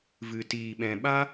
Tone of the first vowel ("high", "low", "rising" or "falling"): low